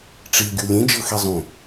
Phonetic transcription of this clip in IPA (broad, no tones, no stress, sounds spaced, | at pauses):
ʈ͡ʂ i ɡʲ u lʲ ẽ d͡ʒ ɤ x e zˤ ũ